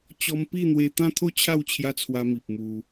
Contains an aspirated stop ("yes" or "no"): yes